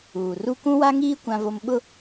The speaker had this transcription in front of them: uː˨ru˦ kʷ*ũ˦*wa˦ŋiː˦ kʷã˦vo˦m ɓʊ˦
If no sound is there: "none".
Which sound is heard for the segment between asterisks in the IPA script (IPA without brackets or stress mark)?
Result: ũ˦